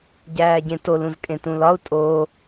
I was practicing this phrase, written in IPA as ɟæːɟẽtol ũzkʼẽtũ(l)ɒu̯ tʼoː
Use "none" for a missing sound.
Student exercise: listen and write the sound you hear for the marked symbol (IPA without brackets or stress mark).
l